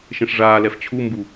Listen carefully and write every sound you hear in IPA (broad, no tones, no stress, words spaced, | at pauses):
ʃẽʂʐaːlɛf t͡ɕʰumbu